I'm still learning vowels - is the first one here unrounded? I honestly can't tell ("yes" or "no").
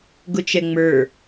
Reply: no